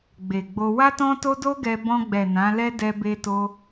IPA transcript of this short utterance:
ɡ͡b e˨ ɡ͡b o˧ w a˦ t ɔ̃˦ t o˦ d o˦ ɡ ɛ˧ b ɔ̃˧ ɡ͡b ɛ˨ n ã˨˦ l ɛ˦ d ɛ˧ b e˧ t o˧

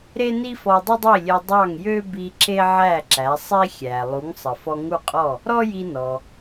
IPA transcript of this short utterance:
ɾ e˥ n i˥ f ɔ˧ dˤ ə˥ dˤ i˥˩ lʲ e˧ dˤ ɑ˥˩ ŋ j ø˥ b i˧ ǁ e˥ ʕ æ˥˩ ǁ æ˩˥ sˤ i˥ xʲ æ˩ lˠ u˩˥ ŋ sˤ ə˩ f ɔ˧ ŋ u˥˩ qʼ ɔ˥˩ | ɾ ɔ˥ j i˧ n ɔ˩

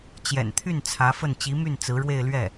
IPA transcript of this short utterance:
t͡ɕ j ɛ̰˨˩ n t̪ʰ y˥˩ n t͡sʰ ä˧˥ f ə˥˩ n t͡ɕ i˧˥ m y˥˩ n t͡s ɹ̩˧˥ ɻ w e˥˧ ɪ̯ l ɥ ɛ˥˩

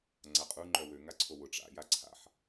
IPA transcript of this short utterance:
ŋ͡ǀ a qʼ u ŋ͡ǃ œ w ø ŋ a ǀʰ o w ʊ ʈ͡ʂ a̰ j a ǀʰ a̰ ħ

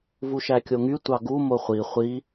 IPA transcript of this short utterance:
v u ʃ æ kʲ o ŋ y tʷ ɑ ɡ u m o χʷ i χʷ i

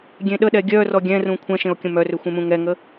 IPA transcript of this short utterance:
ɡʲ ẽ ɗ ə ɗ ɛ ɡʲ œ r ɔ ɡʲ ɛ̃ r ũ kʷʰ ɛ̃ ʃ ẽ o̯ kʲ ə̃ m œ r ø xʷ ẽ m ũ ŋ ɛ ŋ ə

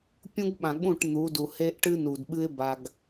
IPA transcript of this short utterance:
pʲ ũ˦ ɡ ɓ ã˨ ɠ ũ˦˨ ʈ n̪ u˨˦ d u˨ h e˦ ʔ ʈ ɨ˦ n u˨ d ɓ ɨ˦ ɪ̯ b a˦ ɡ

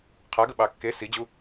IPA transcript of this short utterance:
qʰ a ɡ ə ɓ ɑ kː e s i d͡ʑ u

